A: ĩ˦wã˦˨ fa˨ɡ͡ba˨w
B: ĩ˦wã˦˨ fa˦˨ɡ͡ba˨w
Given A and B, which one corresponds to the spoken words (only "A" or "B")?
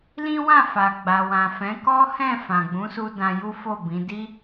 A